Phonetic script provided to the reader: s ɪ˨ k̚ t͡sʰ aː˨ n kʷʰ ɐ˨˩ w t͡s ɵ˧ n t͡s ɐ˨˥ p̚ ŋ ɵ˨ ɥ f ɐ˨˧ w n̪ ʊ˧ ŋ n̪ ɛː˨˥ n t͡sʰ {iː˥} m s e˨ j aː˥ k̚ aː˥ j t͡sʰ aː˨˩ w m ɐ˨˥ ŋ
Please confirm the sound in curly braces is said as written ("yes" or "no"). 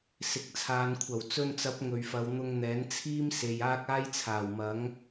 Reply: yes